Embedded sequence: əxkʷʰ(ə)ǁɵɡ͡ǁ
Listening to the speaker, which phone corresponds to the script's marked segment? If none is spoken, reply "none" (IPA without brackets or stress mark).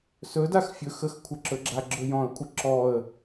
ə